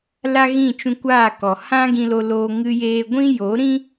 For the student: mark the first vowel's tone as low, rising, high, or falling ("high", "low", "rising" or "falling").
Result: high